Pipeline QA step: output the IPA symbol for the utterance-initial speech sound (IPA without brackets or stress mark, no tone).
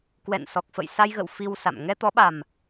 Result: k